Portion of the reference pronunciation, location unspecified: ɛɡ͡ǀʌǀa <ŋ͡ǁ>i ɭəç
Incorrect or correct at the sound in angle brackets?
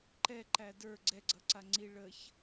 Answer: incorrect: ŋ͡ǀ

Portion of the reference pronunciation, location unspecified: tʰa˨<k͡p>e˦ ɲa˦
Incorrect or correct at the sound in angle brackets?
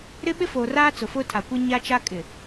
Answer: incorrect: kʷ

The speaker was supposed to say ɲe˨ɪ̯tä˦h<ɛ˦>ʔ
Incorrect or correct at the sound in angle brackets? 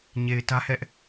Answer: correct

